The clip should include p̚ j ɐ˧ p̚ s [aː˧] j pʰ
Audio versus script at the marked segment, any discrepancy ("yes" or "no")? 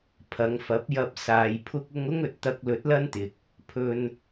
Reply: no